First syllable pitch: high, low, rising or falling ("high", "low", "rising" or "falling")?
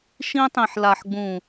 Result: high